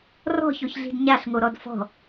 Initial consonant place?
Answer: alveolar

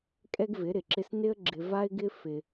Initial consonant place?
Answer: velar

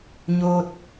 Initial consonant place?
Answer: palatal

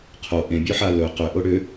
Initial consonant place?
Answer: uvular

